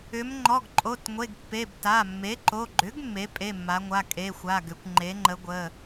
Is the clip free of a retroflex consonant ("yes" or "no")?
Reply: yes